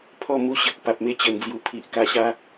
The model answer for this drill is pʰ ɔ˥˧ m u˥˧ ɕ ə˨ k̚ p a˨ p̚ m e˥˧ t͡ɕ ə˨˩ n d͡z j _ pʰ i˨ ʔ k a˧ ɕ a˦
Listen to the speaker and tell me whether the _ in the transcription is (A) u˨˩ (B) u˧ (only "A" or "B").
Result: A